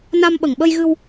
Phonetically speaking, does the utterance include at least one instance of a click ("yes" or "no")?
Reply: no